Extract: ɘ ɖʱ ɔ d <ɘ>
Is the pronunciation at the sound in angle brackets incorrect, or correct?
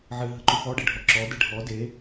incorrect